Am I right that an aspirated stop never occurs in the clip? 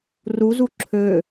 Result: no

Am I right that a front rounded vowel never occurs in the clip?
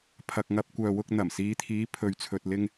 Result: no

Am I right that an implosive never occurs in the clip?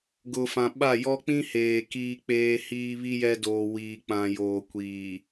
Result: no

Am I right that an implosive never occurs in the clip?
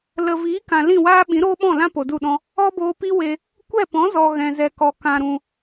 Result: no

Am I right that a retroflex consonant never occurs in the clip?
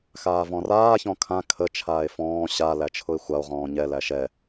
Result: yes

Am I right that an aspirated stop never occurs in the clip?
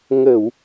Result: yes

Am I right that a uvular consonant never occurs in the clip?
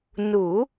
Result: yes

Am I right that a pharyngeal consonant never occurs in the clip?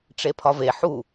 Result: no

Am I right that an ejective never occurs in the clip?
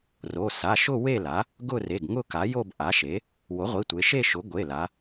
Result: yes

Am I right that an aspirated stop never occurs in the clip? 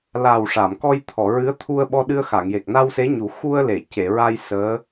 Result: no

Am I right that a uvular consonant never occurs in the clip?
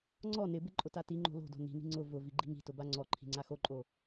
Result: yes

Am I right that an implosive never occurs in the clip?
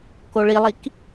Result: yes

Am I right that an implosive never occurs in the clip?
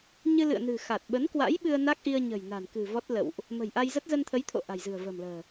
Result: no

